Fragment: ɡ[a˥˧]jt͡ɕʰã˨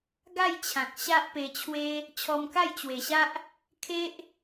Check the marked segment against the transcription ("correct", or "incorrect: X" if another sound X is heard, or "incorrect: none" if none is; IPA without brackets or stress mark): correct